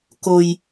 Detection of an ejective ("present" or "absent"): absent